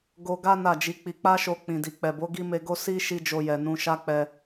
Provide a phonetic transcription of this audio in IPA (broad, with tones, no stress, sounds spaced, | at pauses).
ɡ o˧ ɡ a˦ n a˦˨ d͡ʒ i˨˦ k͡p i˧ k͡p a˦ ʃ o˧ k͡p ĩ˨ d i˨ k͡p ɛ˨ b o˨˦ ɡ i˦ m e˧ ɡ o˦ s i˦ ʃ i˦ d͡ʒ o˧ j ɛ˨ n ũ˧ ʃ a˦ k͡p ɛ˧